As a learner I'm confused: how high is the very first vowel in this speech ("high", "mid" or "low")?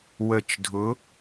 mid